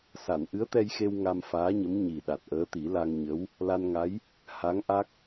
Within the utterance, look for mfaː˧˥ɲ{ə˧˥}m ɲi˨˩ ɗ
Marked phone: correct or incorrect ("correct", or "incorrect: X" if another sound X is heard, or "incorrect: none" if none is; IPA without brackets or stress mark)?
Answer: correct